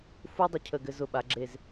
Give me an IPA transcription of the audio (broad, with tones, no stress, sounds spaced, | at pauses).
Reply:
f u˥ dˤ ʏ˧˩ cʰ ə˧˩ ɡ ɘ˧ z ʊ˧˩ ɓ a˩˧ ɡ͡ǁ e˧˩ z